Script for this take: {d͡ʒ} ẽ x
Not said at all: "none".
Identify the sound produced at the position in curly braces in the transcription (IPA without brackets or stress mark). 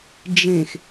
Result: d͡ʒ